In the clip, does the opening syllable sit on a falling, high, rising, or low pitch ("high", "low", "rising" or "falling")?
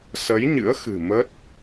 rising